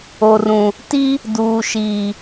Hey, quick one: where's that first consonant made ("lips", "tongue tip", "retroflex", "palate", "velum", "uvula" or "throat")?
tongue tip